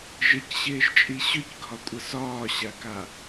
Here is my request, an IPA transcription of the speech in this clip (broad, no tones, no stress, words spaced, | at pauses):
ʒɪcɕɪːʒt͡ʃʼi ɕʏcɡʱɒkʷʼə sɒːɕaka